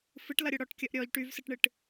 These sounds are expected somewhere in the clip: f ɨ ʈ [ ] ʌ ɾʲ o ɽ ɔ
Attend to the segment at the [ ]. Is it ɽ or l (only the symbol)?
l